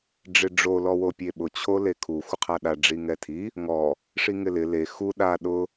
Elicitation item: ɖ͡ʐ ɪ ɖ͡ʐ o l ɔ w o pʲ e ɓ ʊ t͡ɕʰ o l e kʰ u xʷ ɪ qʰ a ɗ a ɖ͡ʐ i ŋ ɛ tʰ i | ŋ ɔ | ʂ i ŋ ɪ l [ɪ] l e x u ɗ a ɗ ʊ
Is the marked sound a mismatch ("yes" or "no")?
no